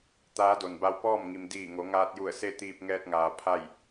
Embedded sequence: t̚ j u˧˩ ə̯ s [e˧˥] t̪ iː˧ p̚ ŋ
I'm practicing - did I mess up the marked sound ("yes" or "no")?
yes